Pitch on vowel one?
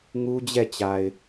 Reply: high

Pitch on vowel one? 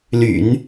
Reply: low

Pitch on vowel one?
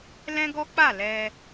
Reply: high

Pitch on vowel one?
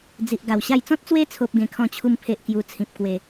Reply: low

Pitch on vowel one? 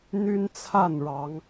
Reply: high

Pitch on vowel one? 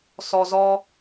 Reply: low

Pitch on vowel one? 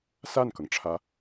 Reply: falling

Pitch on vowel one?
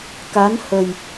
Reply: rising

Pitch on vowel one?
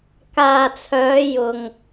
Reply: low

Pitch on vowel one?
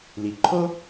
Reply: low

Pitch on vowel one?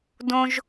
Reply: high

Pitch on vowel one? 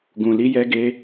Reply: low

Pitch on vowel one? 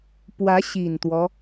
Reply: rising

